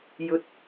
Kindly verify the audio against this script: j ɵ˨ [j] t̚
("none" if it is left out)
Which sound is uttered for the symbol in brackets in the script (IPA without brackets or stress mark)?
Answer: none